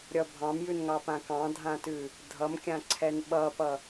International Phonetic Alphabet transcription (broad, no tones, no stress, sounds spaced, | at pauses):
ɾʲ ʌ bʱ ɑ̃ m j ʉ n ŋ ɑ p ã k ɑ̃ dʱ ã t ʉ | dʱ ʌ m kʲ ã ǀʰ ɛ n ɓ ʌ p ʌ